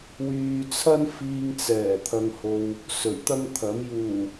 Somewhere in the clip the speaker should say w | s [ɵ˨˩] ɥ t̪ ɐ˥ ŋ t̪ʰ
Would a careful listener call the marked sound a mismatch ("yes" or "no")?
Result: no